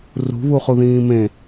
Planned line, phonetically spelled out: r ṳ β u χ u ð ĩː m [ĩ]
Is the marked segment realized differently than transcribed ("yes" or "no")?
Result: yes